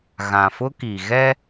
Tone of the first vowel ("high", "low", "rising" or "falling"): low